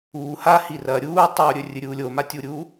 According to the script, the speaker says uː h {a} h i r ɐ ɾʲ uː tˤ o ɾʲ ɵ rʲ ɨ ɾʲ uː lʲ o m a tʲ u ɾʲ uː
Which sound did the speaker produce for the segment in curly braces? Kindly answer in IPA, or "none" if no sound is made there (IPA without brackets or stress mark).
a